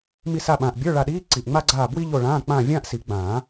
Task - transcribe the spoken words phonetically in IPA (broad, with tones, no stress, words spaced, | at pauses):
mi˦˨sa˦˨ɓãː˨˩ʔbʲə˞˧˥˧ ɭa˦˨ɗiː˧˥˧ ǀi˨˩ʔŋ͡ma˥ ɡ͡ǀaː˦˨bwi˥ʎo˦˨ɭãː˧˥˧ k͡pãː˦˨vʲãː˥ʔ si˨˩˦ɡ͡bãː˨˩˦